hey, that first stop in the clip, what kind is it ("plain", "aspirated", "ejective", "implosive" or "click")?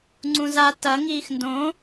click